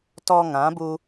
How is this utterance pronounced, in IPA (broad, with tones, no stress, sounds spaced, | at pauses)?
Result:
t ɔ˧ ŋ ã˨˦ b u˧